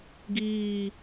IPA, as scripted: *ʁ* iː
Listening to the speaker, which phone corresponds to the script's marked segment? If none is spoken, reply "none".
ɡ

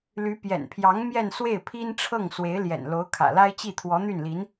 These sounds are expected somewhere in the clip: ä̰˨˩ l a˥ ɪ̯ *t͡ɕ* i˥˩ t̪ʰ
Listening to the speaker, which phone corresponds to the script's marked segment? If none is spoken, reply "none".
t͡ɕ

